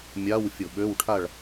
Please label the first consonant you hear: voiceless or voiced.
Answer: voiced